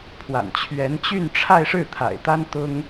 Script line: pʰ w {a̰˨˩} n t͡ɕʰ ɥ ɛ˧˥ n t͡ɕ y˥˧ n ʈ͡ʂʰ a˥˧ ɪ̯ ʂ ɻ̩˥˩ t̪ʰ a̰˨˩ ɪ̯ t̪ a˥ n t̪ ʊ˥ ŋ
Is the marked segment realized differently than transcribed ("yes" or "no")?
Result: no